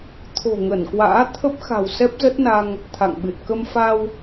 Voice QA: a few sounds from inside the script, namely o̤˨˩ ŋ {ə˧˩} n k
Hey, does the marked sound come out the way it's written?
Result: yes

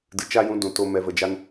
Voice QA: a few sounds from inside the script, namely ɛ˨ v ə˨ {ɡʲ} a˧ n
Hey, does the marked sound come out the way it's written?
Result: no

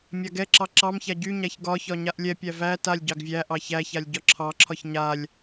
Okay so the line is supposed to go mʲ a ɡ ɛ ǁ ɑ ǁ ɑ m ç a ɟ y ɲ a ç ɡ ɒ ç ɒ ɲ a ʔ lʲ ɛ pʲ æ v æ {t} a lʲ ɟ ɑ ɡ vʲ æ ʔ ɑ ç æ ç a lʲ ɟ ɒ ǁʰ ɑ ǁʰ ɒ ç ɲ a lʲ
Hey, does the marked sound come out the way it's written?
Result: yes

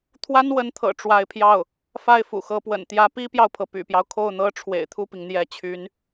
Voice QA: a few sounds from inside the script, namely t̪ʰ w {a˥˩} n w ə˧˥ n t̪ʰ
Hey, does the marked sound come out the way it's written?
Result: no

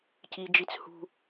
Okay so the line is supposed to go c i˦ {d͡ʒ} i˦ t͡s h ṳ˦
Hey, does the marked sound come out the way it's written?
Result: yes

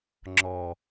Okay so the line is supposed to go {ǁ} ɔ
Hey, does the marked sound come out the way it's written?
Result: no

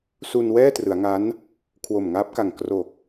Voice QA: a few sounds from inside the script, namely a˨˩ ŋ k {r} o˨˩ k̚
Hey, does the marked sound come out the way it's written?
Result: yes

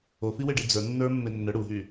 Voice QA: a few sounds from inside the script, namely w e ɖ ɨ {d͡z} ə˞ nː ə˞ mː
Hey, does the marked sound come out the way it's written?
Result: yes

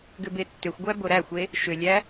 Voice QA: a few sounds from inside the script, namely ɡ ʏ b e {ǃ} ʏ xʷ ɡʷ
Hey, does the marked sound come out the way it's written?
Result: no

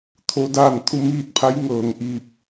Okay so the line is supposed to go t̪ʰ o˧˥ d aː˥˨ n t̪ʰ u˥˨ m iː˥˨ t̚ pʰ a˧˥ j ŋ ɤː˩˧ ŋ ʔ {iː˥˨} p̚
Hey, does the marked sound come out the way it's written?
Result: no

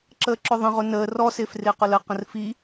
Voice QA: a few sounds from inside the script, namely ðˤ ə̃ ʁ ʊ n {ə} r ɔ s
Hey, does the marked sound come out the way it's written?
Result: no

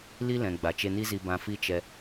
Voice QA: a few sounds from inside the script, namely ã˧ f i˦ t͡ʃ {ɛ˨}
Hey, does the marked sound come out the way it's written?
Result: no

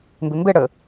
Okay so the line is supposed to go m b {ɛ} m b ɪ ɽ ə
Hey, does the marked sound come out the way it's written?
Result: no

